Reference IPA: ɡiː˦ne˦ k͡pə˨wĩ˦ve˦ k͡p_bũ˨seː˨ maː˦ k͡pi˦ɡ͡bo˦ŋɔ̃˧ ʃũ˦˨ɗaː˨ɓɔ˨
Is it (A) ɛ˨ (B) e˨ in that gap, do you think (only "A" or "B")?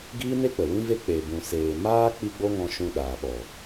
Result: B